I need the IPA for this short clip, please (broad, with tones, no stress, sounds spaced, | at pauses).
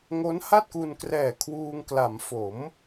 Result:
ŋ o˦˥ n h a˥˩ t̚ k u˧ n k r ɛː˨˩ kʰ w uː˧ ŋ k l a˩˦ m f o˩˦ m